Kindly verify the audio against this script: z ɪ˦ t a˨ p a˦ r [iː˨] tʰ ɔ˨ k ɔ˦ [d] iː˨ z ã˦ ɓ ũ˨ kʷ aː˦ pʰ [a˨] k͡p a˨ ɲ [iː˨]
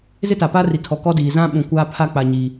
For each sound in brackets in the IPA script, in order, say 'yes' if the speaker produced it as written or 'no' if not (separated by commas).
no, yes, no, yes